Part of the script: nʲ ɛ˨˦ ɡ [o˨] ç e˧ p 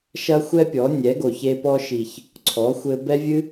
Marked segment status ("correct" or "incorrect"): correct